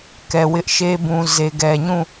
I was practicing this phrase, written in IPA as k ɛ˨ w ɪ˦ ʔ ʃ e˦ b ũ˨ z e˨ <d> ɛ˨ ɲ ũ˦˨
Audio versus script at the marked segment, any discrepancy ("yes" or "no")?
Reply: yes